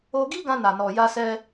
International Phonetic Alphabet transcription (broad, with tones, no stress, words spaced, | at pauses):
o˧ ɡi˦ɡã˧ na˨nɔ˨ ja˧sɛ˧